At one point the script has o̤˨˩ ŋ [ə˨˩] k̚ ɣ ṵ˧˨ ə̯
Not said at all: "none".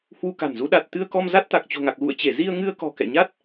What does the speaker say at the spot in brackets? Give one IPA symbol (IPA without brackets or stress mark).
a˨˩